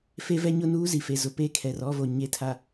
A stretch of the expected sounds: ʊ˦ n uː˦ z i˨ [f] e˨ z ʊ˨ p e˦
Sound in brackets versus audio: correct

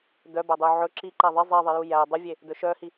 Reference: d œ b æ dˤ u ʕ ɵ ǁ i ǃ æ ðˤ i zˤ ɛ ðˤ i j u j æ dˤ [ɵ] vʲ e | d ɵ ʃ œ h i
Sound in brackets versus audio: correct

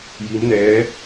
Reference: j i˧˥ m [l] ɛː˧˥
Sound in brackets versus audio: incorrect: n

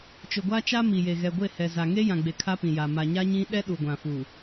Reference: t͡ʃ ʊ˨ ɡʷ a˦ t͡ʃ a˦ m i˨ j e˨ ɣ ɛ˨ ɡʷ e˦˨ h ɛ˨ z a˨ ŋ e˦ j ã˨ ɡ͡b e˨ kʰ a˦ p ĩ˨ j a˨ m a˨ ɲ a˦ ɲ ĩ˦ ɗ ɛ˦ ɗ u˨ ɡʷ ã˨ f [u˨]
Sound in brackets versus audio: correct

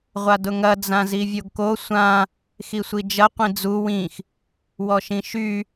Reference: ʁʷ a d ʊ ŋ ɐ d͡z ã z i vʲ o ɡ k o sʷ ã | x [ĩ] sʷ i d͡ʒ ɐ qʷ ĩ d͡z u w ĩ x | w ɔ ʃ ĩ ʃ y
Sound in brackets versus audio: incorrect: i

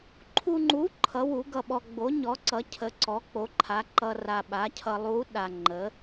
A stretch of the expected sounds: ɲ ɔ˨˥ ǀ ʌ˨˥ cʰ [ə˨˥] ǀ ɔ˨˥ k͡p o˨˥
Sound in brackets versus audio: correct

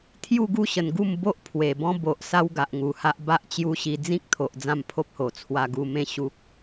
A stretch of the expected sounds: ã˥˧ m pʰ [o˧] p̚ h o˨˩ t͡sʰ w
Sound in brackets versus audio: incorrect: o˦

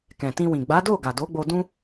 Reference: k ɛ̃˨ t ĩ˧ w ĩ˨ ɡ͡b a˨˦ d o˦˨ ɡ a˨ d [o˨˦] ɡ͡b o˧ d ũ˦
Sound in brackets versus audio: correct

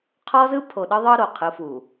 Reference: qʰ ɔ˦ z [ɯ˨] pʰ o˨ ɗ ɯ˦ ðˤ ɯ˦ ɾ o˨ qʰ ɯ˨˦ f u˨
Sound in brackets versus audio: incorrect: ɯ˦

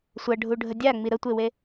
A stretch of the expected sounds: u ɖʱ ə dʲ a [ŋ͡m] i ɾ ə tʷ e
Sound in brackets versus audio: correct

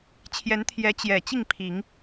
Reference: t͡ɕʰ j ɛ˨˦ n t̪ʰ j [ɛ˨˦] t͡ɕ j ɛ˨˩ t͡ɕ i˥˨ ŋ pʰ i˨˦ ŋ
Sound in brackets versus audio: correct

